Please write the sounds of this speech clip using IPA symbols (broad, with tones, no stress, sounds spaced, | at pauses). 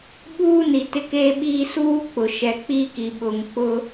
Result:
ɓ uː˦ n i˨ t ɪ˦ k eː˦ ɓ iː˦ s uː˦ k͡p ʊ˨ ʃ ɛ˨ k͡p i˦˨ k i˨ ɓ ʊ˨ ŋ k͡p ʊ˦